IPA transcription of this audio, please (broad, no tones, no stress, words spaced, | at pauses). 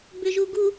bʏʒuɡu